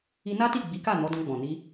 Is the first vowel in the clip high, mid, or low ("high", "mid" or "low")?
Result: high